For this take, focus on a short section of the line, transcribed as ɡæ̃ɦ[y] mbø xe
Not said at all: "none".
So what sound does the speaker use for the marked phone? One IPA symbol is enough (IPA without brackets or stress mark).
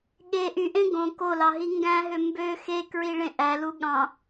ø